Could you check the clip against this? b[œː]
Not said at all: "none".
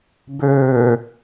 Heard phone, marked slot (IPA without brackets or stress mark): øː